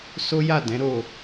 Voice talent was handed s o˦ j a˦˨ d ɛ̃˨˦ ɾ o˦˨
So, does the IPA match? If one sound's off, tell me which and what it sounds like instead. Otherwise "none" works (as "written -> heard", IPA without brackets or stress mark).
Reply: none